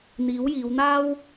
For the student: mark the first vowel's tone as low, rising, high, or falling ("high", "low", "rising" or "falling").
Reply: rising